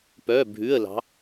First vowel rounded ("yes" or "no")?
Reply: yes